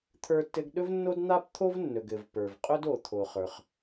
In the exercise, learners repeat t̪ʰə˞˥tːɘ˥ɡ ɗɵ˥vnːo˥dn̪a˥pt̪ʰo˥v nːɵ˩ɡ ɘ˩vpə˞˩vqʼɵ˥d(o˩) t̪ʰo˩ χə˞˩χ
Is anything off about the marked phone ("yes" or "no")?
no